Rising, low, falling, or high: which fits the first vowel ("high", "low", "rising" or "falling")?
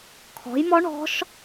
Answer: rising